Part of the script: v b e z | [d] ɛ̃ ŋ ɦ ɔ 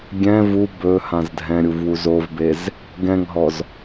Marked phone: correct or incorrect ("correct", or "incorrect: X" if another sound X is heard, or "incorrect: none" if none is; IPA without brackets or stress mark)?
incorrect: ɡ